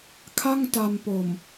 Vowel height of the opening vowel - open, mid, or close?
open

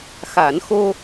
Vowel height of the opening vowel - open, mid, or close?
open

